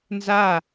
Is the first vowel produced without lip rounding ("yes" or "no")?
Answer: yes